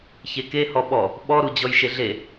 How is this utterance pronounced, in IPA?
ç e k e h ɔ ɓ ɔ | ɓ ɔ ɾ u d͡ʑ ɔ j ʃ e ɮ e

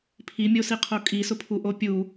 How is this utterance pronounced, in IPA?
pʰ i mʲ o s i qʰ o kʼ i s ʊ pʰ u ʔ o pʲ u

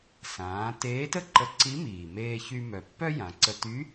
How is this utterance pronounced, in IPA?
s ãː˩˧ t eː˧˥ t ə˥ ǃ ə˧ ǀ i˧˥ m iː˩ m eː˧ ç y˧ m œ˩ pː œ˥ j ã˩˧ ǀ ə˧ t y˧˥

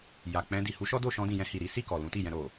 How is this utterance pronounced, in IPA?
j a˨ k͡p ɛ̃˧ d i˨ h u˨˦ ʃ ɔ˦ d o˦˨ ʃ ɔ̃˧ d ĩ˨ j ɛ̃˧ h i˨ ɾ i˨˦ s i˦˨ k ɔ˨ l ũ˨˦ t i˦˨ j ɛ̃˧ ɾ o˨

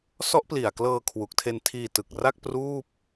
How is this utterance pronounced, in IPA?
s ɔ˦˥ ʔ p l i˨˩ a̯ k l ɤː˧ kʰ w u˨˩ k̚ tʰ e˧ n tʰ iː˧ t ɯ˨˩ k̚ r a˥˩ k̚ p r uː˥˩ p̚

